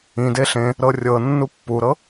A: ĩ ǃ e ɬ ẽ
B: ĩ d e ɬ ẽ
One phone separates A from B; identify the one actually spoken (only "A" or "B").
B